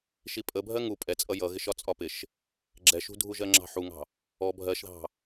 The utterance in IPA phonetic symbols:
ʃ i pʼ ə bʱ ɜ ŋ u pʼ ɛ t͡sʼ ʌ j ʌ ɣ ɪ ʃ ɒ t͡sʼ ɒ p ɪ ʃ | ɡ͡ǁ ɛ ʃ ṳ dʱ u ʒ ɜ ŋ͡ǁ ɑ̤ ħ u ŋ ɑ̤ | ɔ bʱ ɜ ʃ ð ɑ̤

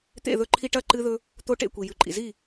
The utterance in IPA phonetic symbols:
t̪ ḛ˥˨ ð ɵ˦ ǃʰ i˦ ʈ ɐ˥˨ ǃ ɨ˦ ð ɵ˦ | t̪ o˦ ʈ ḛ˥˨ kʷ i˩ j ʉ˩ ǃʼ ḭ˩ z i˥˨

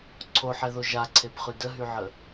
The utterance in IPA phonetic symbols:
ǀʰ o ħ ɛ ð o ʒ a ǀʰ e b χ y d ə ɦ y ʕ ə

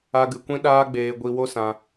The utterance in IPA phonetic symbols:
a˧ ɡ ɨ˨ kʷ ĩ˦ ɗ aː˦ ɡ͡b eː˧ ɡʷ i˧ w o˦ s ã˧

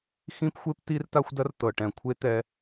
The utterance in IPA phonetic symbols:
x ĩ˦ p xʷ e˦ p t i˦ r t a˦ xʷ d ɐ˦ r t̪ ɤ˨ ʈ ɛ̃˨ kʷʰ e˦ t̪ ɛ˧

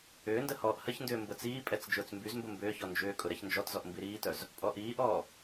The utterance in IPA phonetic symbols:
ʏː n d ə h ɔː ʔ h ə ç n d ʏː m b ə t͡s iː pʼ ɛ t͡s d͡ʒ ʊː t͡s m b y z m b ə m b ʏː ç ɔ n d͡ʒ ʏː kʼ ʊ ɾ ɛ ç n d͡ʒ ɔ t z ɔ ʔ m b i ɾ iː t œ z | pʼ ɔ ʔ iː ʔ ɔː

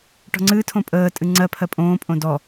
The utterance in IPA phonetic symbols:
ʈ ɔ̤ ŋ͡ǀ ɨ tʰ õ pʼ əː tʼ ɨ ŋ͡ǀ ɜ pʰ ɜ pʼ õː pʼ õ d ɔ

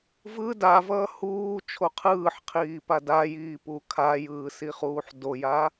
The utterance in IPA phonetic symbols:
v ɯ d a v ʌː h uː t͡ʃʰ o qʰ ɯː ħ qʰ iː p a d a j iː p u kʰ a j ɯː s i χ uː ħ d o j a

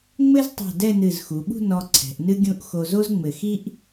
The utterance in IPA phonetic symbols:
ŋ͡m ɘ˥ z tˤ o̤˧˩ d ɛ˥˧ n ɨ˧˩ z x u˩˧ ɓ ṳ˥˧ n ɔ˧ ǀʰ ɛ̤˩˧ ʔ n ɨ˥ ɡʲ ũ˥˧ ʔ x o˧ z o˥ z ŋ͡m ɘ˧˩ x i˥ ʔ

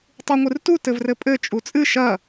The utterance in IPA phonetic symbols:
tˤ u ŋʷ ɨ r t u t ɘ v r ɘ pʼ ɘ t͡ʃʼ u t͡sʼ ɨ ʃ ɐ

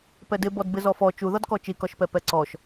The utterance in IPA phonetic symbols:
p ɛ d ɪ b ɔ d b ɪ z ɔ f ɔ t͡ʃ u ð ɒ d k ɔ t͡ʃ i k ɒ ʃ p ɛ p ɛ ǀ ɔ ʃ

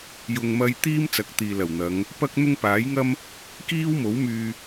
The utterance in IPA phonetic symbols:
j ʊ˨ ŋ m ɐ˧ j t̪ iː˥ m t͡s ɐ˨˥ k̚ t̪ iː˨ l ɐ˨˩ w n̪ ɐ˨˧ ŋ | p ɐ˥ k̚ n̪ ʊ˥ ŋ p aː˨˥ j ŋ ɐ˥ m | k iː˥ w m o˨˥ w m yː˧

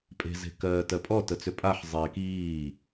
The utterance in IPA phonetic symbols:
pʼ e̤ z e̤ k ɜː t ɜ pʼ ɔ t ə t͡s ʏ pʼ a ħ zˤ eː k iː

